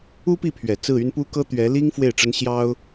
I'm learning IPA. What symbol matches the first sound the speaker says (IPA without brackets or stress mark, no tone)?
u